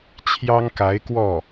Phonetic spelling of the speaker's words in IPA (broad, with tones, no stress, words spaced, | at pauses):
t͡ɕʰjɑ˥ŋka˧˥ɪ̯kwɔ˥˩